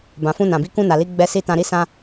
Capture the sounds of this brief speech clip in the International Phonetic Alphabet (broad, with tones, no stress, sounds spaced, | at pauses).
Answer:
b ã˨ f ũ˧ n ã˨ b i˨˦ k ũ˧ n a˨ l i˨˦ ɡ͡b ɛ˧ s i˧ t ã˧ ɾ i˦ s ã˦